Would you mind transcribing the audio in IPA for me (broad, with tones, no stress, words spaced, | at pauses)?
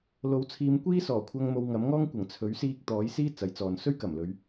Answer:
lo˨˥wt͡sʰiː˨˧m kʷiː˥sɔː˨˩ kʷʰɐ˧ŋ mo˧wŋɐ˨˥mŋɔː˥ŋ kʷɐ˨˩ŋt͡sʰɵ˨˥ɥsiː˧k̚ t̪ɔː˨˥jsiː˥ t͡sɐ˨˥jt͡sɔː˨n sɵ˥ɥkɐ˨˩mlɵ˨˧ɥ